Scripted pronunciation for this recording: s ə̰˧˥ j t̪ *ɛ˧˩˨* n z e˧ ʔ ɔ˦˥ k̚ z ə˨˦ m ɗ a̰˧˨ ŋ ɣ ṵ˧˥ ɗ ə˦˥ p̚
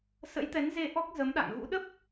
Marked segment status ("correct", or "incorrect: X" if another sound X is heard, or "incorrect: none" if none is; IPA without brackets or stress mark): incorrect: ɛ˨˦